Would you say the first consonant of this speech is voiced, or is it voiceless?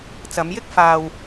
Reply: voiceless